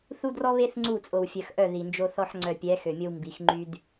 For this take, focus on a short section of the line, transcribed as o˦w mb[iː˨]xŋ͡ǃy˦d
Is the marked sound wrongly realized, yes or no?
yes